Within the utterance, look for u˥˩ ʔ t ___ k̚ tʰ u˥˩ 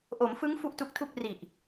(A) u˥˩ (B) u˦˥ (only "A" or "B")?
B